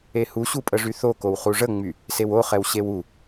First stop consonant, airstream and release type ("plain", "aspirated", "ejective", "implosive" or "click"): ejective